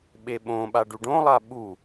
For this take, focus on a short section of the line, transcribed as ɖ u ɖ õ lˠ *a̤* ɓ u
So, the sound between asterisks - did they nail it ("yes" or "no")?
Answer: no